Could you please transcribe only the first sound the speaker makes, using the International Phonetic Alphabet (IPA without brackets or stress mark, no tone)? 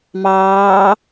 m